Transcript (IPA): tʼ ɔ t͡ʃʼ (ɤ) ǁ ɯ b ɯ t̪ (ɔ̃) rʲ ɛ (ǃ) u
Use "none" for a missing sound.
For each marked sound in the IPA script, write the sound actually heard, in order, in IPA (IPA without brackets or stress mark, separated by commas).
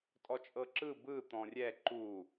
ɤ, ɔ̃, ǃ